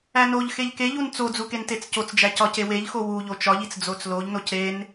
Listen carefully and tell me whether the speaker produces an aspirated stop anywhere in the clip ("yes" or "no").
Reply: no